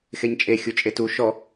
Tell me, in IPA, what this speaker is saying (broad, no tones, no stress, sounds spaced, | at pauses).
x e ɲ t͡ʃʼ e xʲ u t͡ʃʼ e t u ʃ ɔ